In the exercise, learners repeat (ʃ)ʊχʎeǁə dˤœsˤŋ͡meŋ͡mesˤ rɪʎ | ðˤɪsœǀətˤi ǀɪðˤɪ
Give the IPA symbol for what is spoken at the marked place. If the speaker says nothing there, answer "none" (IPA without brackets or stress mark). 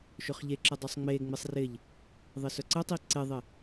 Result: ʃ